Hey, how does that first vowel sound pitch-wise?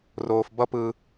high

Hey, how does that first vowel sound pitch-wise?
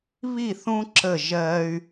falling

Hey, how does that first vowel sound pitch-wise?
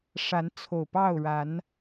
rising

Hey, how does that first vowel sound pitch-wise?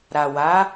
low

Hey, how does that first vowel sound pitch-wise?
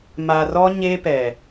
low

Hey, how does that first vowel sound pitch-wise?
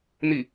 falling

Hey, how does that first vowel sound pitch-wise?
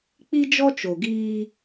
high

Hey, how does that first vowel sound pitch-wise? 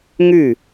falling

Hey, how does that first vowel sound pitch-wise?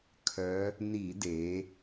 rising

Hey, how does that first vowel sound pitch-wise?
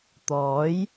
rising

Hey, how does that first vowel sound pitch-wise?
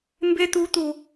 high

